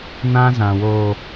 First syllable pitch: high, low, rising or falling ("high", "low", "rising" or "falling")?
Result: high